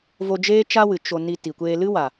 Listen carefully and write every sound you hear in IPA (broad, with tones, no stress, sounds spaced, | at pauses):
v o˧ d͡ʒ eː˦ t͡ʃ a˦ w ɨ˨ t͡ʃ o˨ n i˧ t i˨ kʷ eː˧ l ɨ˦ w a˨